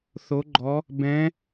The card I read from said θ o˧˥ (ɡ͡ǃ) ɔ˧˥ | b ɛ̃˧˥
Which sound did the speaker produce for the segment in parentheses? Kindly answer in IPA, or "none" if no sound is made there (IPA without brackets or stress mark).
ɡ͡ǃ